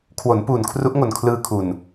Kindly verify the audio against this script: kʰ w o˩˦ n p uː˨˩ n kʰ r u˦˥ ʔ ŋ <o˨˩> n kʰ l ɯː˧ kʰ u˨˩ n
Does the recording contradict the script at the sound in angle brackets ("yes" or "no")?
no